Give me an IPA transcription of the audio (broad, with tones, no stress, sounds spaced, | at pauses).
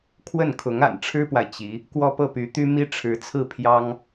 kʰ w ə˥˩ n kʰ ʊ˧˥ ŋ a̰˨˩ n ʈ͡ʂʰ ɻ̩˥ p w a˨ ɪ̯ t͡ɕ i˧˥ | k w ɔ˥˧ p ɤ˥˩ p y˧˥ t̪ y˥ m i˥ ʈ͡ʂʰ ɻ̩˧˥ t͡sʰ ɹ̩˥˩ pʰ j ɑ˥ ŋ